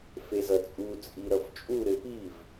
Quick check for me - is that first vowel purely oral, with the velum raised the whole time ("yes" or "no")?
yes